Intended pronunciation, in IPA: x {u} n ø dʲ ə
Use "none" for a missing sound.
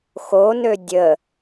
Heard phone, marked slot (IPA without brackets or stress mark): o